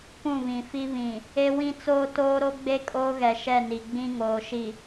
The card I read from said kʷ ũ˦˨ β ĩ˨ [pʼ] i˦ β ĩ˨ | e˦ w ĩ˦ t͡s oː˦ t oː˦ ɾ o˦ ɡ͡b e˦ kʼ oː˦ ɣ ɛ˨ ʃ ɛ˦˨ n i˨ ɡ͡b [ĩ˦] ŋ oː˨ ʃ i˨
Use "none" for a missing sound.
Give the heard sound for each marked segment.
f, ĩ˦

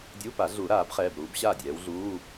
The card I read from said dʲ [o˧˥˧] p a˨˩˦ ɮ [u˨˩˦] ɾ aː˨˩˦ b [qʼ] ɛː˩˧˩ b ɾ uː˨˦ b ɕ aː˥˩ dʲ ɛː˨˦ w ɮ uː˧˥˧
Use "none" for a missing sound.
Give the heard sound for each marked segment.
u˧˥˧, u˨˩˦, χ

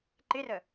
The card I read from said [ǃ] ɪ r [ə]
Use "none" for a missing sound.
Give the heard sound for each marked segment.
ǃ, ə

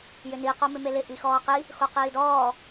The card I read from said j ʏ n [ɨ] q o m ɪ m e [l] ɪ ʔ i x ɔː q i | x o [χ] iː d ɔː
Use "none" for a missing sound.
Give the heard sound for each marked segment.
i, l, q

